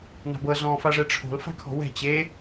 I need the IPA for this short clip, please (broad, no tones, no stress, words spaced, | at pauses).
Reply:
na̤bɤ zɔ̃ːfaʐɛʈ͡ʂʰo̤l fa̤kʰɔ̤wɛ̤ t͡ɕe